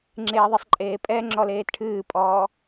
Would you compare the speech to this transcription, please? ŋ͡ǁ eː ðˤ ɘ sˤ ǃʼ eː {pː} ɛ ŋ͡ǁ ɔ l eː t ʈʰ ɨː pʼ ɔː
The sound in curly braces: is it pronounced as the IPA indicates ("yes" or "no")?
no